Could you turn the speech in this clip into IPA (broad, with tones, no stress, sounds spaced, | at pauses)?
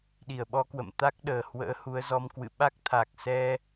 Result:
ɗ i˧˩ ə̯ ɓ ɔ˧ k w ə̰˧˨ m t̪ a˦˥ k̚ ɗ əː˧˩ h w ə̰ː˧˥ h u˨˦ ə̯ z ɔ˧ m k w ɨ̰˧˨ ɓ a˦˥ k̚ t̪ʰ a˨˩ k̚ s ɛ˧